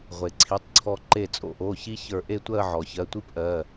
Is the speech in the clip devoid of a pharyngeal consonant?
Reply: no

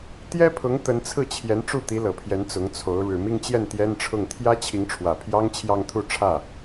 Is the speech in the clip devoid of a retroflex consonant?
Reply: no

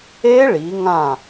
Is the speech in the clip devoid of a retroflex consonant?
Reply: no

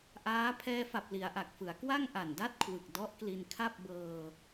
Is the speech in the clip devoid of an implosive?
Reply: yes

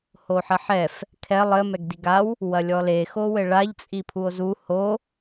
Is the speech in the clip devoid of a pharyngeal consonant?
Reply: no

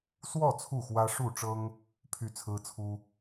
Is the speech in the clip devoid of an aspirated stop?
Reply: no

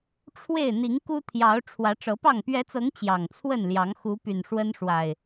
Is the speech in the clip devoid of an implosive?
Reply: yes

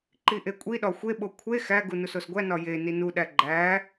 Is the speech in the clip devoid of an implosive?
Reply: no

